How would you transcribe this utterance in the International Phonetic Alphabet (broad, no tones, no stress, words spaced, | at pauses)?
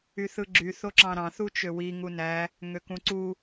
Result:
yθɯɡ͡ǁy θoǁɑ̃ɾɑ̃ θut͡ʃøwi ŋunæ | ŋøkũǀu